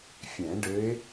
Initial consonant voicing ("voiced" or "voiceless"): voiceless